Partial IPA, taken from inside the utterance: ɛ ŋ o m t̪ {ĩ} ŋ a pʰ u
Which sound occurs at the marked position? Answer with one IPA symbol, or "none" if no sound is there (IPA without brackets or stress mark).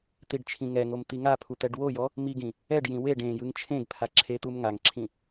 i